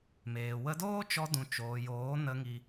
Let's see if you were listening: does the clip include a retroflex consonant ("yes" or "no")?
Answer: no